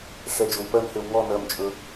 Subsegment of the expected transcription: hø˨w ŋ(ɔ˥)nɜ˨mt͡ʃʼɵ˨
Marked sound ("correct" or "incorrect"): incorrect